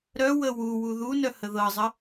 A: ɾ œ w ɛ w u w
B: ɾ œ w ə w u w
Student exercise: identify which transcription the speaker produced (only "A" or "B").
B